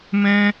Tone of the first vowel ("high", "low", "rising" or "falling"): high